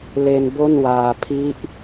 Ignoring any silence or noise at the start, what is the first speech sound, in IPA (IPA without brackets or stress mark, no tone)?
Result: l